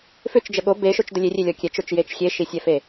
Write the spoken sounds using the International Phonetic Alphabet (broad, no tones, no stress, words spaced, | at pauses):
fʏt͡ʃd͡ʒə ɠo beʃot͡ʃdə lʲerʲelʲɔ kʲɛt͡ʃot͡ʃjet͡ʃ xʲeʃisʲɛfe